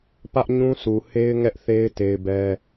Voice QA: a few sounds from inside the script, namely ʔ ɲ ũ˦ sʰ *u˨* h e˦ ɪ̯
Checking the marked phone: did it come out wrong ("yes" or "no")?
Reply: no